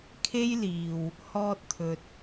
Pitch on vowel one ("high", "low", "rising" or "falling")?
high